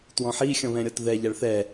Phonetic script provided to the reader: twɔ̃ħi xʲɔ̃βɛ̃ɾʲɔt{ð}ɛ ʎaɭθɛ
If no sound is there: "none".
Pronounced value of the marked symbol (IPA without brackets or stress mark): ð